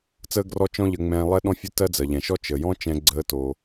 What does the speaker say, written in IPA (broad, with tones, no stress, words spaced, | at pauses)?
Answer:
t͡səː˥ɡrɔ˥ t͡ʃɔ̃˥ʎə˧ŋ͡mɛ̃ː˧ lˠɛ˥ɗɔ̃˥fʲə˥tɜ˥ d͡zɜ˩ʎɛ̃˩ʃɔ˥ t͡ʃəː˩jɔ̃˥t͡ʃɛ̃˧ ɡ͡ǀəː˧ to˩